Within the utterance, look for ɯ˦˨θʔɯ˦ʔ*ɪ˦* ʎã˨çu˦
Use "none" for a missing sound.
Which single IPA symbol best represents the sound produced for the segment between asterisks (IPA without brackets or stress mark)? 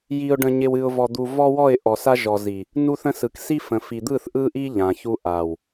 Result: i˦